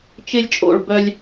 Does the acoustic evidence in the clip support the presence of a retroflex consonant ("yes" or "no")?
yes